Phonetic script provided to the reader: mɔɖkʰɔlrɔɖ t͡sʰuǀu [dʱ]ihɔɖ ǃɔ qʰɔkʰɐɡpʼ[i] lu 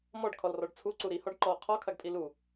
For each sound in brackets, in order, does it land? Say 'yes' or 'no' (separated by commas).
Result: no, yes